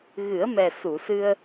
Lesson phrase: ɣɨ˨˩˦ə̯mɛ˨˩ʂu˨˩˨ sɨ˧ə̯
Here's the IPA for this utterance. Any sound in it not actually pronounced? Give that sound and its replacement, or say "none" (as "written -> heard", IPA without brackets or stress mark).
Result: ʂ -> s